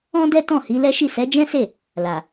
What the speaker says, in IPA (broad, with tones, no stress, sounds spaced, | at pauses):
ɔ̃˦ d ɛ˦ t ɔ̃˦˨ h i˨˦ l ɛ˦ ʃ i˦˨ s ɛ˨˦ d͡ʒ ɛ̃˦ s e˦˨ | l a˨